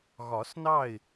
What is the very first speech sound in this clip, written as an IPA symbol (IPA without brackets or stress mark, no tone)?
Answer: ɣ